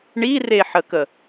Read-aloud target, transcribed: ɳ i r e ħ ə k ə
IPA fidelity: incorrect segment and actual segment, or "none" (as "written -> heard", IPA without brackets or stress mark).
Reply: none